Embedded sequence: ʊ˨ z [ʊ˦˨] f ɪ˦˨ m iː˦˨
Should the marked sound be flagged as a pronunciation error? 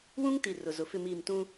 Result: yes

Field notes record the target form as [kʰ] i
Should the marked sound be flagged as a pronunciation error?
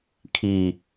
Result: no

